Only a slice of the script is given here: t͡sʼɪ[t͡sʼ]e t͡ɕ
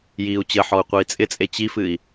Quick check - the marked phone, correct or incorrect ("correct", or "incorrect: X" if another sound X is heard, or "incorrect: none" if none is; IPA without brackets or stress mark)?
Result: correct